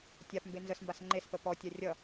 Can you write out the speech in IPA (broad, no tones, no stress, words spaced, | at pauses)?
tʲapmbe nzəsmbas ŋ͡ǃespə pɔtʲa rʲʌ